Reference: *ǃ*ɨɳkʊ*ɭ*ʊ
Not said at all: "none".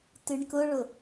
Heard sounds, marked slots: t, ɭ

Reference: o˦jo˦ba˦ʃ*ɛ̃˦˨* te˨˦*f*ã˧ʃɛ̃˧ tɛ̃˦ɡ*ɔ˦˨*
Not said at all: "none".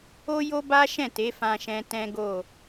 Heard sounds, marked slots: ɛ̃˦˨, f, o˦˨

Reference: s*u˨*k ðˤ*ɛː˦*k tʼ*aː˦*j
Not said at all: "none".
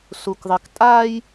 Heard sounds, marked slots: u˦, ɪː˦, aː˦

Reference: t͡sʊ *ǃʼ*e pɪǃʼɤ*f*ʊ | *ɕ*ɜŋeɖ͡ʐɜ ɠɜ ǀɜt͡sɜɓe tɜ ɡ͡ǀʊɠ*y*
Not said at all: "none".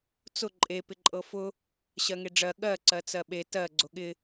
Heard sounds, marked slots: ǃʼ, f, ɕ, ɪ

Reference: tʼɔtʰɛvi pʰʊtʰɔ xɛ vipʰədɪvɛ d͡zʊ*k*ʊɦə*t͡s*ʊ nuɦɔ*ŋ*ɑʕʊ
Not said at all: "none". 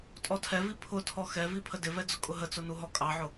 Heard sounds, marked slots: kʼ, t͡s, kʼ

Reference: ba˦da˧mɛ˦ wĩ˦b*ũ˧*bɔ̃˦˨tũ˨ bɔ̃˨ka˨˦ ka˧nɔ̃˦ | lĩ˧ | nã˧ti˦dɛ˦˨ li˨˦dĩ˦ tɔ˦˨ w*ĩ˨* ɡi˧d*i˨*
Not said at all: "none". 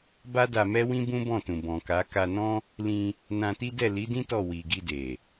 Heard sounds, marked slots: ũ˦, i˨, e˨

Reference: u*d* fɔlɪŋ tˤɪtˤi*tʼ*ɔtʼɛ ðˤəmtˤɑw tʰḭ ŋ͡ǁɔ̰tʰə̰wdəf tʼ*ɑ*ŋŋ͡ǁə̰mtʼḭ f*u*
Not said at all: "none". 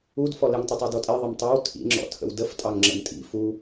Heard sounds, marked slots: d, d, ɑ, u

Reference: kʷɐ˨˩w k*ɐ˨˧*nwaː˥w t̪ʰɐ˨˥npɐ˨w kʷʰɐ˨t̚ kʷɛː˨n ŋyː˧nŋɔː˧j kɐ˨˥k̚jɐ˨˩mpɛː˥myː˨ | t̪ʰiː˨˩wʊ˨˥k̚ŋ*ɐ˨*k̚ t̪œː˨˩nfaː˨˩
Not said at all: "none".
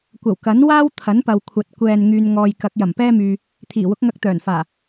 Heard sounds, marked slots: ɐ˨˥, ɐ˧

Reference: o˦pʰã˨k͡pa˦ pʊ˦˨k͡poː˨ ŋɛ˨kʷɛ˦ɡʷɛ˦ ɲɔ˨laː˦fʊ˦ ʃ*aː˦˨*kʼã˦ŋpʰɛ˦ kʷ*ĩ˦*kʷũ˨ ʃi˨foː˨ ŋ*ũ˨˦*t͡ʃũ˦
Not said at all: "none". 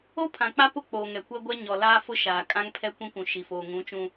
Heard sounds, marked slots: aː˨, ĩ˦, ũ˨˦

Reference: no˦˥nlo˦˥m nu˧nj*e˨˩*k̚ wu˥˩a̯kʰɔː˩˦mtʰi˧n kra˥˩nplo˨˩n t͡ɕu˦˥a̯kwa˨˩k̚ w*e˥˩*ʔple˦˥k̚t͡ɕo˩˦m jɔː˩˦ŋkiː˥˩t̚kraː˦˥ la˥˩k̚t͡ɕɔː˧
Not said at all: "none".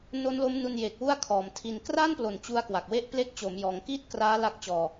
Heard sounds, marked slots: e˨˩, e˦˥

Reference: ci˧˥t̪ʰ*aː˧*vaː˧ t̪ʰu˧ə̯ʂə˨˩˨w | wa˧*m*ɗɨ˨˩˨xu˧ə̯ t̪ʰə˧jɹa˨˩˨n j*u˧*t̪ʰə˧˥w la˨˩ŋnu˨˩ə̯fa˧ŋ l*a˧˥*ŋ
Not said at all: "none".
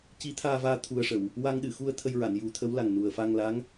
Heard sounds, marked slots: aː˧, ŋ, u˨˩˦, a˧˥

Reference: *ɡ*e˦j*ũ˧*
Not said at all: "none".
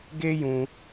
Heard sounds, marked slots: ɡ, ũ˧

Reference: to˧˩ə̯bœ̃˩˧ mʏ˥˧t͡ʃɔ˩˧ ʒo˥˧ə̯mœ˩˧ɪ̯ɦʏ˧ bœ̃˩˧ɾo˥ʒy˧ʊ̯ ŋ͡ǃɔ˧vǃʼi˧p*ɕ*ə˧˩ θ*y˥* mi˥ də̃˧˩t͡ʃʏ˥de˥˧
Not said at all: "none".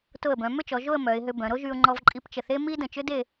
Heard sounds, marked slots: t͡ʃ, e˥

